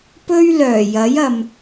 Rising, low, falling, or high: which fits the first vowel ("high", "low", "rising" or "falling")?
high